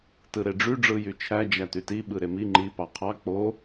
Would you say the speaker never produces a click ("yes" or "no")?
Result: no